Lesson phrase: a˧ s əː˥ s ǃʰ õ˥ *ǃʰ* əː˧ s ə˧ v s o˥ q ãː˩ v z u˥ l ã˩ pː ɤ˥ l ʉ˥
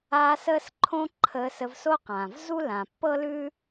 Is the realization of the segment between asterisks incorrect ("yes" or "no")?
no